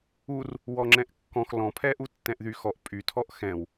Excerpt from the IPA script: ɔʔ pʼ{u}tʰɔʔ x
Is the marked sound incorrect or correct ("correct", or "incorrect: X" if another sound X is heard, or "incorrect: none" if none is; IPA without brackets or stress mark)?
incorrect: y